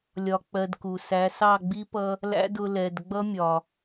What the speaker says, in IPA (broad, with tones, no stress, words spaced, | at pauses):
lʲɒ˧k͡pɜ˧dku˨ sæ˨˦sɑ˦˨ɡ͡bi˦ pʌ˧ | læ̰˦dʊ˧ lɛ˨dɡ͡bʌ˦mʲɒ˨